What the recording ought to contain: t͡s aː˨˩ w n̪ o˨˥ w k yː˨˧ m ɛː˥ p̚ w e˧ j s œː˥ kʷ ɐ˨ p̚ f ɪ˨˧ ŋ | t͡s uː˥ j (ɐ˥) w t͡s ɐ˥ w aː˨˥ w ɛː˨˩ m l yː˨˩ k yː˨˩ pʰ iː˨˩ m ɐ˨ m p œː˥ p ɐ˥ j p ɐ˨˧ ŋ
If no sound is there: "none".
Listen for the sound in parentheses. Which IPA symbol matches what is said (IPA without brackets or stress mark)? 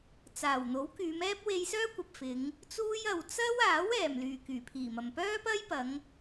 ɐ˧